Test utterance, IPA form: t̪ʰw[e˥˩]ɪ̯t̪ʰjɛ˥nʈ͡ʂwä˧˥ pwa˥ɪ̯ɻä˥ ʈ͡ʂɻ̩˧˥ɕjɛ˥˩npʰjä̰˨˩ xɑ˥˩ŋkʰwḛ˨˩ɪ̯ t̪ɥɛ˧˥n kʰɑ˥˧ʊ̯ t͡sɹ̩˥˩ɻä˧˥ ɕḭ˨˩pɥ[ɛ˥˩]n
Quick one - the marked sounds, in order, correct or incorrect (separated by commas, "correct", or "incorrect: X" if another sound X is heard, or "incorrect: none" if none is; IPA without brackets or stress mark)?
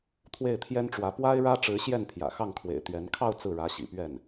correct, correct